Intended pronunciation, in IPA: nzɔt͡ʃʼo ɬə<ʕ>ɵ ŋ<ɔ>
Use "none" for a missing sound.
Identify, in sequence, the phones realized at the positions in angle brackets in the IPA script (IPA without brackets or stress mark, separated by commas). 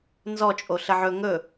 ʕ, ɵ